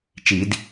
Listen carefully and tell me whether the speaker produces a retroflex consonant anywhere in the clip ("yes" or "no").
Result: no